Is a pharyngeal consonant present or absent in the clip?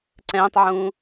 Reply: present